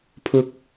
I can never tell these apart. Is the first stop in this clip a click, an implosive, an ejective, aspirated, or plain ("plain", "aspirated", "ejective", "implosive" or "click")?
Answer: aspirated